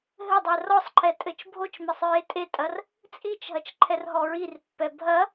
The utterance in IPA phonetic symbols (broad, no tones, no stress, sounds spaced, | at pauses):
ɦ ɘ dˤ ɛ r ɔ sˤ ǃʰ ɛ tʼ ɘ t͡ʃ bʱ o t͡ʃ m ɛ sˤ ɹ e tʼ e tʼ ɐ r | t͡sʼ i t͡ʃ ɦ ɐ t͡ʃ ǃʰ ɛ r ɦ ɔ ɹ i r pː ɛ bʱ ɐ